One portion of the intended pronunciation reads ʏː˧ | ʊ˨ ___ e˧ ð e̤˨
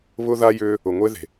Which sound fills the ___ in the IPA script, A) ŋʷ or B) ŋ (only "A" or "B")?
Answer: A